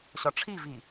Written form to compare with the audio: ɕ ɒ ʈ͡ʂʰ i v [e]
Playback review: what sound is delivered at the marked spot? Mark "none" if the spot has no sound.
i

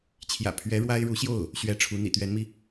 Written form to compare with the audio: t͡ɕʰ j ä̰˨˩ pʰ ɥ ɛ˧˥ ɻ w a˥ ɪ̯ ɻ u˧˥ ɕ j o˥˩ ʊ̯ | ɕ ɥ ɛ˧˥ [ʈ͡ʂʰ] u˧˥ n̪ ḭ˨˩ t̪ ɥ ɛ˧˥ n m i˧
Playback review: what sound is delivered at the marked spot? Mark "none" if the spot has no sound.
ʈ͡ʂʰ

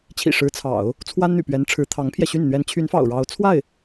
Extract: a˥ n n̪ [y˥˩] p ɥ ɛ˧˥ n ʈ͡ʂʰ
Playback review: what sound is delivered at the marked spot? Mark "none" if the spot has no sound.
y̰˨˩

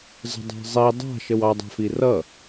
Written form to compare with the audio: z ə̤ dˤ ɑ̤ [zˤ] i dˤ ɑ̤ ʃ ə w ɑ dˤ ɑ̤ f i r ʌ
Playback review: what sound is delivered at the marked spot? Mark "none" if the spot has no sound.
zˤ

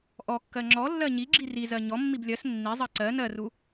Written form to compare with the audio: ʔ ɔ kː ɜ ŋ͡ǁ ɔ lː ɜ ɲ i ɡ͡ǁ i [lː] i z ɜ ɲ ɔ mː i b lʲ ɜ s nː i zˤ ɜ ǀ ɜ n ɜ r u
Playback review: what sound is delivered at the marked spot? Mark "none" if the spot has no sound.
r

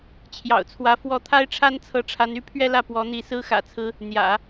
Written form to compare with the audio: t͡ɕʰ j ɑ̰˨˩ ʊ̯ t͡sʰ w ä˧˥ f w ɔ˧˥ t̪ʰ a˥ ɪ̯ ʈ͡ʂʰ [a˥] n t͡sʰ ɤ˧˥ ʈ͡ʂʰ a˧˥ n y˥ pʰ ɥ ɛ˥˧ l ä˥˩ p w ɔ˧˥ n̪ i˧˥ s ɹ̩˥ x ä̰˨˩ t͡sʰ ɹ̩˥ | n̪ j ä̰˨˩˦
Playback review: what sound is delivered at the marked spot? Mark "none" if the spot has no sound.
a˥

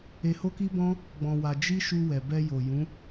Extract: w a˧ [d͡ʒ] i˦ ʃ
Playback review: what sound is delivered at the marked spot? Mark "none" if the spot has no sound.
d͡ʒ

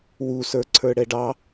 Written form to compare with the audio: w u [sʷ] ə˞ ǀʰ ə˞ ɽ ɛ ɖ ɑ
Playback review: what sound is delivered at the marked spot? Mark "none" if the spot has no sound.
s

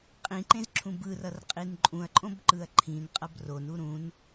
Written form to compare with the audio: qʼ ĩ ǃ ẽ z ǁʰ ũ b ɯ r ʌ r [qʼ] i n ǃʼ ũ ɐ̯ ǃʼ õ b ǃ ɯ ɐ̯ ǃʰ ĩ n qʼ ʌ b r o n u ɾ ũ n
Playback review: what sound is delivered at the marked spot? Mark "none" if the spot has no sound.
qʼ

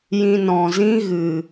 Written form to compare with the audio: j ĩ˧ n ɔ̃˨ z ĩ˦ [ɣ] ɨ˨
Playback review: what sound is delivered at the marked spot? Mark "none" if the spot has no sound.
ɣ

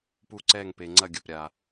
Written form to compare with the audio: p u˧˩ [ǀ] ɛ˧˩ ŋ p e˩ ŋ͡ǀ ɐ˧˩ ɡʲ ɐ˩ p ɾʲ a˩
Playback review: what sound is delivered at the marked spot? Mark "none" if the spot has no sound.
ǀ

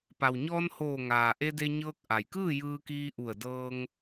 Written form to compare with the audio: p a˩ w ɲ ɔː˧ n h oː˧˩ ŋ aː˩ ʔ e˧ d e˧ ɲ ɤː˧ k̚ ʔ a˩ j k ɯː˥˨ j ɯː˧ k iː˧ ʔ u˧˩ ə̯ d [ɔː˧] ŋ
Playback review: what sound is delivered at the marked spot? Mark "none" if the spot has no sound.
ɤː˧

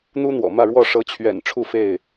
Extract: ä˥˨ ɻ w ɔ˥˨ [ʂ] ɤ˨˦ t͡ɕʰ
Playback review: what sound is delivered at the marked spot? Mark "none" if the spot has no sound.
ʂ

